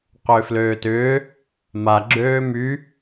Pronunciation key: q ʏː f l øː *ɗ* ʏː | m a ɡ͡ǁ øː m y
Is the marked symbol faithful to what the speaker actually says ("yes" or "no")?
no